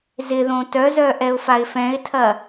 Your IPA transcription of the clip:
z ɪ ð õ t œ z œ ʔ ɛ ʊ̯ f a ɪ̯ f ɛ̃ ɪ̯ tʰ ɐ

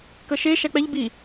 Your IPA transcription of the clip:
k ə ʃ e ʃ æ k͡p ɛ ʎ b i

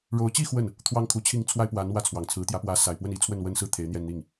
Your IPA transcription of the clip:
ɻ o˧˥ ʊ̯ t͡ɕ i˥˧ x w ə˥˩ n | t̪ʰ w ɑ˥ ŋ kʰ u˧˥ t͡ɕʰ i˥˩ ŋ t͡sʰ w a˥ ɪ̯ p w a˧˥ n w ä˥˩ t͡sʰ w ɑ˨˩ ŋ t͡sʰ ɹ̩˧˥ t̪ j ä˧˥ p w ä˧˥ s a˨˩ ɪ̯ p w ə˥˩ n i˥ t͡sʰ w ə˥˩ n w ə˥ n s ɹ̩˥˩ t̪ʰ e˧˥ ɪ̯ n̪ j ɛ˥˧ n n̪ i˥˩ ŋ

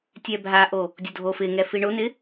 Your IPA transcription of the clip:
tʲ ɛ bʱ a ʔ o | dʲ o dʱ o f ɪ ŋ ɛ f i ɳ ʊ n̪ ɪ

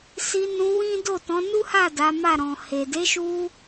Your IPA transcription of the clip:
s i˧ n ũ˧ w ĩ˦ d o˦˨ t ɔ̃˨˦ n u˦ h a˦˨ d a˨˦ m a˦˨ ɾ ɔ̃˨ h e˨ d e˨˦ ʃ u˧

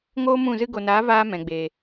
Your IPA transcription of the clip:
ŋ oː˦ m ũ˦˨ z ɨ˧ ɡ o˨ n aː˨˦ v aː˦ m ɛ̃˨ ɡ͡b eː˨

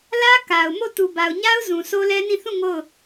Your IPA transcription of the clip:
l ä˦ k a˨ ʊ̯ m o˦˨ t u˨ b a˨ ʊ̯ ɲ a˦ ʊ̯ z ũ˨ sʰ o˦ l ɛ˦ n ĩ˦˨ θ ũ˦˨ ŋ o˦˨ ʊ̯

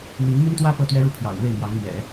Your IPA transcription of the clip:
n̪ i˧˥ ŋ m y˥ n t̪ w ä˥ p ɤ˥˩ t̪ ɥ ɛ˥ ɻ u˥˩ pʰ j ɑ̰˨˩ ʊ̯ n̪ w e˥˩ ɪ̯ m j ɑ˧˥ ŋ m ɥ ɛ̰˨˩˦

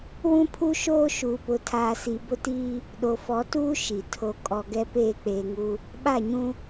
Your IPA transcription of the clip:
w ũ˦ pʰ u˦ ʃ oː˦ ʃ uː˨ p ʊ˨ tʰ aː˨ s i˨ b ʊ˦ t iː˦ | ɗ o˨ f ɔ˨˦ t uː˦ ʃ i˨ tʰ o˨ kʼ ɔ˨ ɡ ɛ˦ p eː˦˨ k͡p eː˨ ŋ u˦ | ɓ a˦˨ ɲ ũ˦

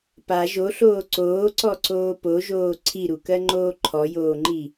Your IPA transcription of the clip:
p a ʒ o ɬ oː ǀ oː ǀ ɔ ǀ oː p o ʒ oː ǀʰ i ɾ u k ɜ ŋ͡ǃ oː ǃʰ ɔ j oː ŋ͡ǃ i

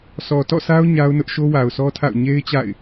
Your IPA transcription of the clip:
sʰ ɔ˨ t ɔ̰˦˨ sʰ a˦ ʊ̯ ɲ a˦ ʊ̯ n ʊ˦ ʔ ʃ o˦ w a˨ ʊ̯ sʰ ɔ˦ tʰ a̰˦˨ ʊ̯ ɲ e˦ ɪ̯ t͡ɕ a̰˦˨ ɪ̯

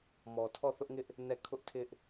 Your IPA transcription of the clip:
m ɔ˨ tʰ ɔ˦˨ θ ʊ˦ ʔ ŋ ɪ˦ ʔ | n ɛ˦˨ kʰ ʊ˦ ʔ tʰ ɪ˦ ʔ

